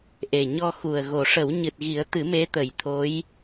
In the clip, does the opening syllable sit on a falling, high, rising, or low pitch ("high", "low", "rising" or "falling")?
low